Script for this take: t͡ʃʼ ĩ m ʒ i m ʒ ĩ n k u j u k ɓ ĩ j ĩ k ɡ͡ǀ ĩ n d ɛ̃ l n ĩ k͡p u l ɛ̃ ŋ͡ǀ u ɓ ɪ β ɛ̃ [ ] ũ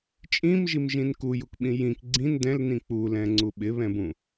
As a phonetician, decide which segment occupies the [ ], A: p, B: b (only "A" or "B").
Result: B